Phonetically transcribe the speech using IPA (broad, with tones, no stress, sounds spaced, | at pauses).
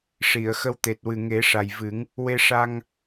ʂ i˨˩˨ ə̯ x ə˧ w t̪ e˨˩ t̚ w ɨ˨˩ ŋ e˨˩˦ ʂ a˨˩ j v ɨ˨˩˦ ŋ | w e˧ ʂ a˧ ŋ